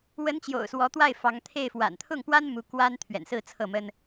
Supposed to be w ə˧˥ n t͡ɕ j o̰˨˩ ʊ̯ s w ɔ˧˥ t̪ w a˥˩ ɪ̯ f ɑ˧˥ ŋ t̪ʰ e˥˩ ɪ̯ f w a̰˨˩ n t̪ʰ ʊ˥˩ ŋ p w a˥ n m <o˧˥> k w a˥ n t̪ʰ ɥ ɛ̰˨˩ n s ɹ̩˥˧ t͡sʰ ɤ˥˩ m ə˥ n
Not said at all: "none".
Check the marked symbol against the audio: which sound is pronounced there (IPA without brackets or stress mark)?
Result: u˧˥